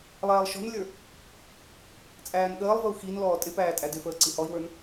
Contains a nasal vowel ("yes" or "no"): no